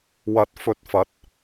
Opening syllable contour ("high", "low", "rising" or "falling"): rising